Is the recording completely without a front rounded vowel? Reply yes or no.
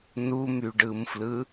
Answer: no